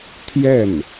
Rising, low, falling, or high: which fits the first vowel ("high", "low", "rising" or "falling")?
falling